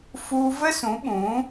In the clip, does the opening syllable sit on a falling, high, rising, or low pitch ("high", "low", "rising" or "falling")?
high